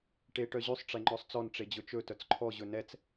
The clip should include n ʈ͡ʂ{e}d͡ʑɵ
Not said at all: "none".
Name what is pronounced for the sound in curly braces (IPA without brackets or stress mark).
e